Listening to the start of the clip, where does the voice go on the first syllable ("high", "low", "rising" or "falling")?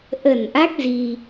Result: low